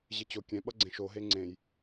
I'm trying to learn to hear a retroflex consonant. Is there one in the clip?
no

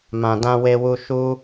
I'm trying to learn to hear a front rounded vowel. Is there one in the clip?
no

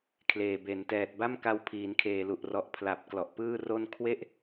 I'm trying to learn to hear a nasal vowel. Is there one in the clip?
no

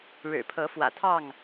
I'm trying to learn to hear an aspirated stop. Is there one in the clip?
yes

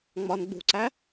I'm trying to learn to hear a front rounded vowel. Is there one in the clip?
no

